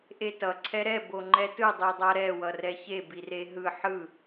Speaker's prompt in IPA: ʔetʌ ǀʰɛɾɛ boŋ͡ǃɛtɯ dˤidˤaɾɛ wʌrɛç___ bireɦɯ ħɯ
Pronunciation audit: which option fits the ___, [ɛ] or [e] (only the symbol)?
e